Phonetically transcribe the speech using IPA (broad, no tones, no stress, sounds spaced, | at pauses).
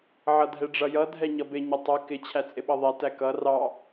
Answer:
ʕ ʌ dʱ ɛ ɖ͡ʐ ʌ j ʌ dʱ ɛ ɲ ʌ b ɪ ɲ ə tˤ ʌ k ɪ t͡ɕʰ æ t͡sʼ ɪ ɓ ʌ ðˤ ɛ t æ k ʌ r ɑ